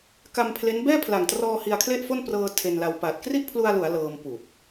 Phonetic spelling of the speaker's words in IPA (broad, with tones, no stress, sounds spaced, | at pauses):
k a˧ m pʰ l e˦˥ n b ɛː˥˩ pʰ l a˨˩ ŋ t r ɔː˧ h i˧ a̯ kʰ l e˥˩ ʔ f o˥˩ n p r ɤː˧ tʰ e˧ n l a˧ w p aː˨˩ t̚ k r i˥˩ ʔ pʰ l u˧ a̯ l u˩˦ a̯ l ɤː˧ m p uː˨˩ p̚